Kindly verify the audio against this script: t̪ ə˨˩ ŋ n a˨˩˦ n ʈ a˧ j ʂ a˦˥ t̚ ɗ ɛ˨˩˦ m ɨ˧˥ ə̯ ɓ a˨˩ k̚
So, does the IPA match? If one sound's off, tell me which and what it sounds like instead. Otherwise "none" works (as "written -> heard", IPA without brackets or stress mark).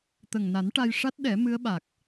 none